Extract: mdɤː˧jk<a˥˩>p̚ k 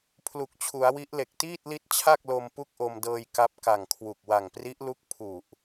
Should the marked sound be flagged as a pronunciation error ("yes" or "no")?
yes